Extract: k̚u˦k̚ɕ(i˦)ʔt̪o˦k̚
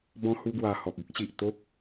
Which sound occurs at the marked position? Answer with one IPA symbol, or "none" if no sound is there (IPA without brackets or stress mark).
i˨